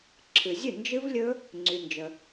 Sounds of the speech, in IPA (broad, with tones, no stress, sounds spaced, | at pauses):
ǁʰ ɨ˨ zʲ ɨ˥˩ n d͡ʒ ɨ˦˥ v lʲ ɵ˦˥ | ŋ͡ǀ y˨ n d͡ʒ ə˨